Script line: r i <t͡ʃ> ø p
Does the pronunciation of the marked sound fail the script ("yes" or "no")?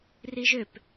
yes